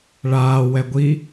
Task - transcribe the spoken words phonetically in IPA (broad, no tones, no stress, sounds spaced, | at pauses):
ɭ aː w ɛ ɡʷ i